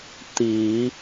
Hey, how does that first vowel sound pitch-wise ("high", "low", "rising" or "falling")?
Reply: rising